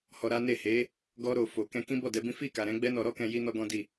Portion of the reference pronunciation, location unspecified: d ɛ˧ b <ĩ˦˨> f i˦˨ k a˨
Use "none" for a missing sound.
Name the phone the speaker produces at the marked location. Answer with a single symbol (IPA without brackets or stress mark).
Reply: ĩ˦